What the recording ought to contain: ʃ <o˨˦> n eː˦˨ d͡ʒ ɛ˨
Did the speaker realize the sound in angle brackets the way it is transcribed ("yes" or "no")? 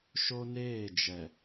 no